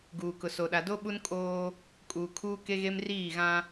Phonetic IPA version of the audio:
ɡ uː˨ k ʊ˨ s o˨ ɗ a˨ d o˦ ɓ u˦ n kʼ oː˦ | kʼ uː˨ kʰ uː˦ k e˦ ɣ e˦ m r iː˦˨ ɣ ã˦

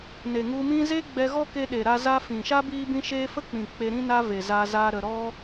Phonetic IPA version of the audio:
n e˨ ŋ u˧ m ĩ˦ z e˦ ɡ͡b ɛ˧ ɣ ɔ˦ k e˧ ɗ e˨ ɾ a˦ z a˧ f ĩ˨ ʃ a˦ b iː˦ b ĩ˦ ʃ eː˦ f ə˦ k͡p ĩ˨ k͡p e˧ ɾ ĩ˦ n a˦ v e˨ z a˧ z aː˧ ɾ ə˨ ɾ ɔ˧

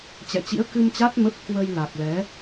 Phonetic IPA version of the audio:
t͡ɕ ɛ̰˧˨ t͡ɕ ḭ˧˥ ə̯ k ɨ˧ m t͡ɕ a˦˥ t̚ m ə˦˥ p̚ k w ə˧ j l a˨˩ k̚ l ɛ˨˦

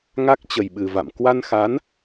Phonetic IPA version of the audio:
ŋ a˦˥ k̚ t͡ɕ ə˨˩ j ɓ ɨ˨˩ v a̰˧˨ m k w a˧ n x a˨˦ n

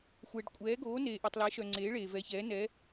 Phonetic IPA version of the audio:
xʷ ɛː˨ ɖ kʷʼ ɛː˨˦ ɡ oː˨˦ n eː˨ ʔ e˨ tˤ l ɛ˨˦ ʃ œ˨ ŋ͡ǀ eː˨˦ ɭ eː˨ v ɛ˨˦ ç ɛː˨˦ n ɛ˨˦

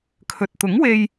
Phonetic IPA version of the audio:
kʰ ɵ˨ t̚ t̪ ʊ˨˥ ŋ w e˧ j

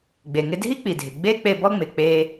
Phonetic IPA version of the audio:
ɡ͡b e˩ ŋ ɪ˥ dʱ i˥ k͡p i˩ dʱ ɪ˩ ɡ͡b e˥ k͡p e˧ b ɔ˥ ŋ͡m ɪ˩ k͡p e˧

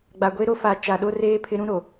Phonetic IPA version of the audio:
ɡ͡b a˨ ɡʷ e˦ ɾ o˦ f a˨˦ t͡ʃ a˨ ɗ o˦ r eː˦ pʰ ɪ˦ ɾ ũ˦ ɾ o˨

